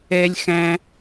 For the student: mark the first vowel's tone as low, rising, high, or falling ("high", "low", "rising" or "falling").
low